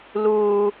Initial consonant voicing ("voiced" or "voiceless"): voiced